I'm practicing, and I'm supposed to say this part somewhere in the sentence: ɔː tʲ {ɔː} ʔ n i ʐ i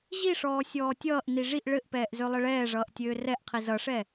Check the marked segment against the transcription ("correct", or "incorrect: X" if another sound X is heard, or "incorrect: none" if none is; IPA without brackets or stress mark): incorrect: ʌː